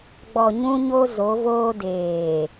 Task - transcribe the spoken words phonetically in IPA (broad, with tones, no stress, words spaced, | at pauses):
ɡ͡bɔ˨ ɲũ˦ɲo˦ zo˨˦voː˦ deː˨